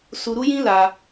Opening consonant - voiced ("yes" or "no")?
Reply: no